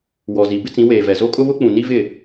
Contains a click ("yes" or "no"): no